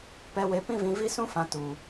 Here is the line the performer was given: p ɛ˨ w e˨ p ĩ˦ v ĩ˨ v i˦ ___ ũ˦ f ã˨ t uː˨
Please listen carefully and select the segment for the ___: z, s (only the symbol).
s